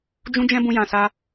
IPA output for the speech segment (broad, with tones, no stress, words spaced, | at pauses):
d͡ʒũ˦d͡ʒɛ̃˦ bũ˧jã˨sa˧